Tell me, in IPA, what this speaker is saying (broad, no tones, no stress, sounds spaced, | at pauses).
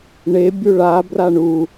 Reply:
ɳ e bʲ u ɭ a b r a ɳ u